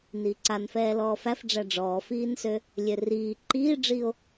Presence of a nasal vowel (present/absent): absent